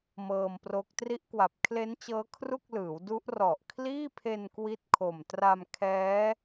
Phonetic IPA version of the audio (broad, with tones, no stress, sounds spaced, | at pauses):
m ɤː˧ m p r o˦˥ k̚ t r i˦˥ ʔ k w a˨˩ p̚ kʰ l e˦˥ n t͡ɕ ɤː˦˥ kʰ r u˥˩ k̚ l ɯː˩˦ w d u˦˥ ʔ r ɔ˨˩ ʔ kʰ l iː˥˩ pʰ e˧ n k w i˦˥ t̚ kʰ o˨˩ m t r a˧ m kʰ ɛː˦˥